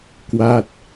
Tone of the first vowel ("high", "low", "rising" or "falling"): falling